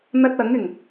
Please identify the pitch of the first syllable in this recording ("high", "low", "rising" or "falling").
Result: high